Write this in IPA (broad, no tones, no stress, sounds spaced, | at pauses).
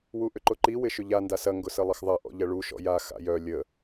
w u ʔ ʏ ǃ ʊ ǃ i w ɪ ʃ ʏ ʎ a n d a s ɐ ŋ ɡ ʊ s ə lˠ ə x ðˤ ɐ ʔ ɔ̰ ʎ ɐ ɭ u ʃ ɔ̰ j a x a̰ j œ lʲ ə